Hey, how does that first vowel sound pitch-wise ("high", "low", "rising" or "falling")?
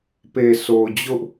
low